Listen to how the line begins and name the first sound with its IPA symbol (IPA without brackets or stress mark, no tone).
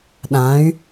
ɗ